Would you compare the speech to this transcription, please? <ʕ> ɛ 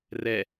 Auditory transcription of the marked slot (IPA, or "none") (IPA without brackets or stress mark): r